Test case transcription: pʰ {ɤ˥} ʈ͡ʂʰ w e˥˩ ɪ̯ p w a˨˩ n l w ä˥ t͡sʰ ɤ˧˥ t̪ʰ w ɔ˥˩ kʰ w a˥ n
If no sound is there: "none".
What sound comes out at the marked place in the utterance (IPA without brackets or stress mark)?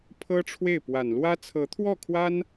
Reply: ɤ˥